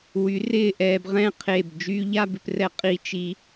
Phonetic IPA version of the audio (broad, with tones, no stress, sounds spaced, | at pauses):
w y˩˧ r ɪː˧˩ ʔ ɛː˧ b ʁ ɛ̃˥˧ qʰ e˧˩ b d͡ʒ yː˧ ʎ a˥˧ b ɪ˧ p r ɛ˧ qʼ i˧ t͡ʃ i˧